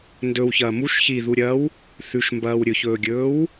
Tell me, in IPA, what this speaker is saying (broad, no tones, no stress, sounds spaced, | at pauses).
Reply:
n d ɵ w ç ɐː m u ʃ ç i ð u ɾʲ ɐː w | θ ʉ ʃ m b ɐː w ɾʲ ɵ ç ɵː ɡʲ ɵː w